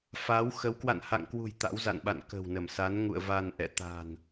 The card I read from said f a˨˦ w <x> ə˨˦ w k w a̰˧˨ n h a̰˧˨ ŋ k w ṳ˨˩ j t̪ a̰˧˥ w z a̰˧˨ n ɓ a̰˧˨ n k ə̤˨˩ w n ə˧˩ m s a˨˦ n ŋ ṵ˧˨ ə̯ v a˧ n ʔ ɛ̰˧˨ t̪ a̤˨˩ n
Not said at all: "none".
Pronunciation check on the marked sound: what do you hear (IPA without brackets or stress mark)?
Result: x